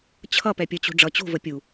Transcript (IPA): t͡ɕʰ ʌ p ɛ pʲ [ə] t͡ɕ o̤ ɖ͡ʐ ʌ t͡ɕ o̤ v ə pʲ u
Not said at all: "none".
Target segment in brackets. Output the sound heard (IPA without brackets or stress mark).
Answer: ə